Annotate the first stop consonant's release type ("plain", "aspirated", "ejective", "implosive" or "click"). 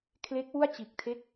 aspirated